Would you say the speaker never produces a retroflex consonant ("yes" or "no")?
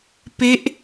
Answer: yes